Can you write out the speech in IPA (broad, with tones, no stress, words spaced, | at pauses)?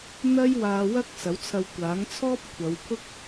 n̪ɐ˥j waː˧wɐ˥k̚ sɐ˨˥wt͡sʰɐ˧wkʷaː˨˥ŋ t͡sʰɔː˥p̚kʷʰɐ˨˧wpʰʊ˥k̚